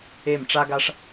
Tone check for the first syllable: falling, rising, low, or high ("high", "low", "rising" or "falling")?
falling